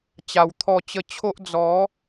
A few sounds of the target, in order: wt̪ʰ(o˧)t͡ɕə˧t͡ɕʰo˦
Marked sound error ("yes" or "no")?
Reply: yes